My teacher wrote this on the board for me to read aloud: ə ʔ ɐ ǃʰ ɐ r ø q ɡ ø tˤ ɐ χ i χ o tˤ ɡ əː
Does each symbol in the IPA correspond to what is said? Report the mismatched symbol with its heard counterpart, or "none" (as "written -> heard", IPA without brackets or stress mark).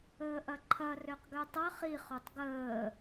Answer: ə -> əː